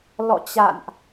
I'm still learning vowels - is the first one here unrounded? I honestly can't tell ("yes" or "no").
no